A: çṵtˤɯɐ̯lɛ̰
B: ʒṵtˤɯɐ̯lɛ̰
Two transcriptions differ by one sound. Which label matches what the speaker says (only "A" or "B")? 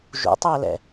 B